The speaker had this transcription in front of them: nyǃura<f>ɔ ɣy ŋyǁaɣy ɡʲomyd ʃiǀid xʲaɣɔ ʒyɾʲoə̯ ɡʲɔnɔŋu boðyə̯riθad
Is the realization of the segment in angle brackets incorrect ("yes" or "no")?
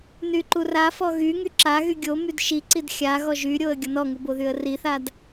no